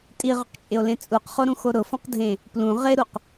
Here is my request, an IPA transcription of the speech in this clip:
tʼ i ʁ ʊ q t͡ʃʼ ɪ o̯ l ẽ t͡sʼ u q χ o ɾ ũ x o ɾ ʊ f ɔ̃ q dʱ ẽ | p l ũ ʁ ɪ ɾ u q

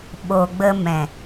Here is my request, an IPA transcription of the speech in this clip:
ɓ o˨ ɡ͡b ə˧ m ɛ̃˨

